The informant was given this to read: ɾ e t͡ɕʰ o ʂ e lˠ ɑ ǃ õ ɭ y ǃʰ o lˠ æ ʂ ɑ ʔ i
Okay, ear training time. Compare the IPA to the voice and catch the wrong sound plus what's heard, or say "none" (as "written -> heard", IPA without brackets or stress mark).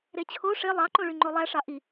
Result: ǃʰ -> ŋ͡ǃ